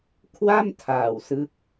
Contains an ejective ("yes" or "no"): no